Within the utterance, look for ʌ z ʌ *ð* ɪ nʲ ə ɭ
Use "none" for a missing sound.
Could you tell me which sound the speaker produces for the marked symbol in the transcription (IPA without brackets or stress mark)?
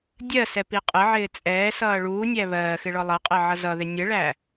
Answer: ð